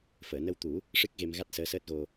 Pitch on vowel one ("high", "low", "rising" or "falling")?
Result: low